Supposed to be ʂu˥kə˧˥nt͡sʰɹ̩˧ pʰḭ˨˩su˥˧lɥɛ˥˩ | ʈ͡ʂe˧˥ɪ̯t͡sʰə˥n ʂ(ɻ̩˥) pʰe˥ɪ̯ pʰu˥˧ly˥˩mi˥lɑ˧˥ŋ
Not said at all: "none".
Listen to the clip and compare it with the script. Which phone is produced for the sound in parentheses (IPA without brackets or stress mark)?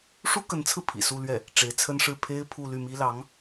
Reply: ɻ̩˥˩